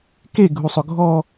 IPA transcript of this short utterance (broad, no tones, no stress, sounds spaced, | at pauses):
k e ɡʱ u sˤ ʊ ɡʱ ɔ